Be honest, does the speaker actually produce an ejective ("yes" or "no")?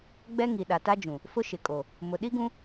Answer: yes